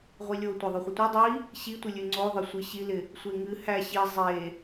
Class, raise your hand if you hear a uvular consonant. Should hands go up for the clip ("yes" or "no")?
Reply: yes